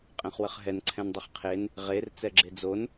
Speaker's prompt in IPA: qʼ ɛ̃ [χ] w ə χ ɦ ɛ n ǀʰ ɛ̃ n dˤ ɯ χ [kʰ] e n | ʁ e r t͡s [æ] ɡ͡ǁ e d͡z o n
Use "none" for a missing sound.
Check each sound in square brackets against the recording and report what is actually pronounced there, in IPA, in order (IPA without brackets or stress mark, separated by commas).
χ, qʰ, ɛ